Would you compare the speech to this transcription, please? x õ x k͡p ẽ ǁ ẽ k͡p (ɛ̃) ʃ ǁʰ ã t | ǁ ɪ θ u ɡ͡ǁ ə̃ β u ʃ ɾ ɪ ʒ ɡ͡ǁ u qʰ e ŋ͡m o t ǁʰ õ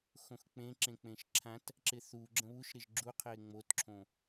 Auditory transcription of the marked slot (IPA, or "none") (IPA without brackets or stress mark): ẽ